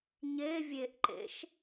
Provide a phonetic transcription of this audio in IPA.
ɲevʲeʔǃḛʃ

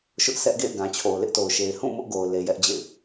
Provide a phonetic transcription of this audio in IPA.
ʃʊ˦ʔsɛ˦ʔɡḛ˦˨ɪ̯ɡã˨ t͡ɕʰo˨ʊ̯lɪ˦ʔto˨ʊ̯ʃe˨ɪ̯ hũ˦˨ mʊ˦ʔɡo˨ʊ̯ le˨jɛ˦ʔd͡ʑḛ˦˨ɪ̯

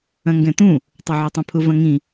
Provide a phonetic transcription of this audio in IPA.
ɐ̃ŋɡɛ̃t̪ũ | tˤɐʕotˤĩpʰʊ vɐ̃ŋĩ

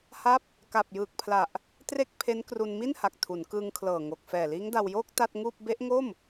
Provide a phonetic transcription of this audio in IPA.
ha˦˥p̚ | ka˨˩p̚jɯː˨˩k̚pʰla˨˩ʔ | tre˥˩k̚ pʰe˦˥nkru˧n mi˥˩nha˨˩k̚ tʰu˩˦nkɯː˧ŋkʰlɤː˨˩ŋo˨˩k̚ fɛː˨˩liː˦˥ŋda˧wjoː˥˩k̚ ta˥˩t̚ŋuː˥˩p̚ be˦˥ʔŋo˥˩m

